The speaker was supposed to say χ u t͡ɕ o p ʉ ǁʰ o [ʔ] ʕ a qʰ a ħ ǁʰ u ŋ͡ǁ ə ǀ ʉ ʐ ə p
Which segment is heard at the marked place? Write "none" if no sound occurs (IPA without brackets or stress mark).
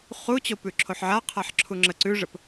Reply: ħ